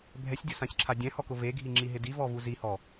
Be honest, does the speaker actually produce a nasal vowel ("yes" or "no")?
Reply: yes